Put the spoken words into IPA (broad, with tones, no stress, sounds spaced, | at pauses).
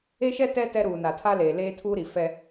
e˦ ʃ ɛ˦ t ɛ˦ t ɛ˦ ɾ uː˨ n a˨ tʰ a˦ l eː˨ l eː˦ tʰ uː˦ ɾ i˨ f ɛ˦